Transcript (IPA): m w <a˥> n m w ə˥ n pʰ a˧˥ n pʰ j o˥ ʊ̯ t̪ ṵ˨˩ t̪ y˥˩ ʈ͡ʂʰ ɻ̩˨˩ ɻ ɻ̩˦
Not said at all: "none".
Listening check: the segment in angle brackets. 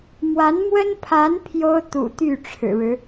a˧˥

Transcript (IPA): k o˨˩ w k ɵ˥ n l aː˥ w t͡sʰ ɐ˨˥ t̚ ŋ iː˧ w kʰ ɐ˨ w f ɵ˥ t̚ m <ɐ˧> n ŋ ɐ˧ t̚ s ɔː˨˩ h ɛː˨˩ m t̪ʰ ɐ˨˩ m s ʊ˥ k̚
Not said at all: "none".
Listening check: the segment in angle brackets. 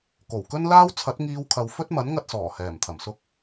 ɐ˨˥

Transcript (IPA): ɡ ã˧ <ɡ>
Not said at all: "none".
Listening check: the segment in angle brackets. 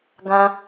none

